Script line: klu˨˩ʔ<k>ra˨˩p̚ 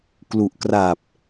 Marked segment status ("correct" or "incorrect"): correct